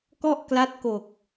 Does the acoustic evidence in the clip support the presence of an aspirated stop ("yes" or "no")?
no